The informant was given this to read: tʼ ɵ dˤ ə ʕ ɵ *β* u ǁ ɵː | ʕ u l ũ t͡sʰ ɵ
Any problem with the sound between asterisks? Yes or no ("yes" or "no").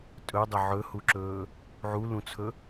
yes